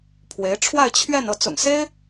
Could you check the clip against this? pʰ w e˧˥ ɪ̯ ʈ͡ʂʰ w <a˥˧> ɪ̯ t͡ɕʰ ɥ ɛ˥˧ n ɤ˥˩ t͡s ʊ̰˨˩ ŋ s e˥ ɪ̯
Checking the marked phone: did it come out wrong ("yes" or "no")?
no